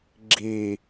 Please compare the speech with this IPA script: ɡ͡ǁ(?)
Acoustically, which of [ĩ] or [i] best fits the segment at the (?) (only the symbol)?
i